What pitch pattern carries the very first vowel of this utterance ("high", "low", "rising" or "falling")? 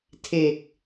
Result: low